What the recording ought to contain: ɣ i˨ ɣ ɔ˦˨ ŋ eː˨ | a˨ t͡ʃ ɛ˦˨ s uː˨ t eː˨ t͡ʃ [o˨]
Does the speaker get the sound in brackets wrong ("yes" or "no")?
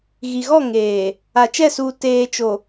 no